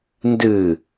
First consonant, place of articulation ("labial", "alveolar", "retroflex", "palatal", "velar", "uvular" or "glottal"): alveolar